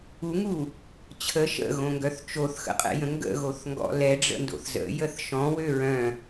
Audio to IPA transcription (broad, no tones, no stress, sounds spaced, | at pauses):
u ŋ u | t͡ɕʰ ə ʃ ə̰ ɣ õ ŋ ɡ œ θ t͡ʃ o θ x ə̰ qʼ ɛ̰ j ə̃ ŋ ɡ ə̰ ɣ o θ ŋ ɡ ɔ̰ l ɛ ɖ͡ʐ ə̰ n d o̰ θ z ə̰ j ə θ ʃ ɔ̃ w ø ɹ œ̃